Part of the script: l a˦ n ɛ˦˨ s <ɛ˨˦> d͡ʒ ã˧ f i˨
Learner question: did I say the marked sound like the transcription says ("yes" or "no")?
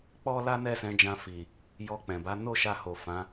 no